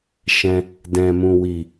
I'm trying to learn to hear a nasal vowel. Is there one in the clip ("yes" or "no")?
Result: yes